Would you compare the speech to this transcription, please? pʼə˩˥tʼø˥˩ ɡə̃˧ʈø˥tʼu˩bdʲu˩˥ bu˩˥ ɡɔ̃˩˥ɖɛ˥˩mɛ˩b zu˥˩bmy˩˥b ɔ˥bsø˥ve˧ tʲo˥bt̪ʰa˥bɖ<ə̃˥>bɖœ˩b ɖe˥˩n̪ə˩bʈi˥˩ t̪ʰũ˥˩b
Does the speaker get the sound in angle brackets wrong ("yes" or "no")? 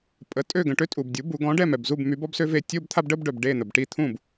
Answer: yes